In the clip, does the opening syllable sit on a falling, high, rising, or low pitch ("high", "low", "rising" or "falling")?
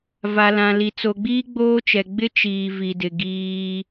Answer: low